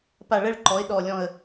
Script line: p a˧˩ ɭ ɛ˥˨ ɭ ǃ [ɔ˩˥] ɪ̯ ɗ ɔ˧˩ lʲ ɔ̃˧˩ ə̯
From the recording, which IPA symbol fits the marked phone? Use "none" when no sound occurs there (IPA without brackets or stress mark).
ɔ˩˥